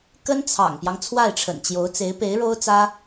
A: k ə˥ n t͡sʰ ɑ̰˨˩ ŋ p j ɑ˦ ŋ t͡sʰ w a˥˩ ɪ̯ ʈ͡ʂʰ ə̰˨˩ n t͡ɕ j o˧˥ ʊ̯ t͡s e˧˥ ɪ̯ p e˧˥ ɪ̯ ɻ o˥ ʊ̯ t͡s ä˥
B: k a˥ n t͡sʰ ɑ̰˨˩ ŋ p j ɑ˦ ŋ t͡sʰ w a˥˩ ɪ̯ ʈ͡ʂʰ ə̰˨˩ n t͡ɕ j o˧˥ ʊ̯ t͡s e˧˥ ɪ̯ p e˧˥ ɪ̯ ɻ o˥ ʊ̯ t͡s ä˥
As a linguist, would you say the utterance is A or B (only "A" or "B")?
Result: A